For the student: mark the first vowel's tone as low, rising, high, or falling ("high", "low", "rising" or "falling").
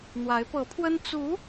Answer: rising